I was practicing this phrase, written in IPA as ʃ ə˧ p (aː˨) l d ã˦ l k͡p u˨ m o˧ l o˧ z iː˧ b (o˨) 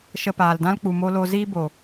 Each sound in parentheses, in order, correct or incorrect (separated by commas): correct, correct